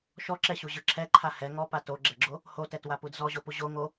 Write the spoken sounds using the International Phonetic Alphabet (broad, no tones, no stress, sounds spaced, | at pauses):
ʃ ɔ ǁ ɛ ɕ u ʑ ɯ ǁʰ ɛ ǃʰ a h ɛ ŋ ɔ p a t o ɡ͡ǁ ɛ ɡ͡ǁ o | h o t ɛ t w a p u d z ɔ ʑ o p u ʑ o ŋ o